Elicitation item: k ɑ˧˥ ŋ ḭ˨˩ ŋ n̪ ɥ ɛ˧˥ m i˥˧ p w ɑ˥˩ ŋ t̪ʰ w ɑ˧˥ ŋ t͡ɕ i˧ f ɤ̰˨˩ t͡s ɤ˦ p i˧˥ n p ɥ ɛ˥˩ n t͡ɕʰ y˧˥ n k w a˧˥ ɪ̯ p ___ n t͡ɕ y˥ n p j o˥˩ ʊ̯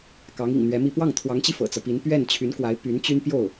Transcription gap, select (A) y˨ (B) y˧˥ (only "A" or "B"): B